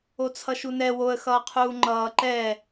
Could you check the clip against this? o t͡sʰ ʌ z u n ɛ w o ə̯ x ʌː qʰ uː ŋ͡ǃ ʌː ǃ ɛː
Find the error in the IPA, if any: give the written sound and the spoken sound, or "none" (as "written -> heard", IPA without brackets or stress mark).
z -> ʃ